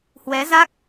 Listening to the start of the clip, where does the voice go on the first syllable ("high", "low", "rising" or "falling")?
rising